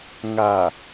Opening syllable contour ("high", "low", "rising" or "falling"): low